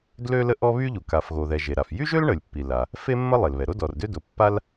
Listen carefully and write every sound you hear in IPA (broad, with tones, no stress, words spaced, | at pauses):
dlø˥lə˥ʔɔ˥ βy˥ʎu˩ ka˩fɣo˩ðɛ˩ ʒe˩ɾa˩f jy˥ʒø˥l ɳə˩lʲpːi˩la˩ | fe˥mːə˥ lˠe˩lβɛ˩ ɾo˥dɔ˩rdø˥do˩ pːa˥l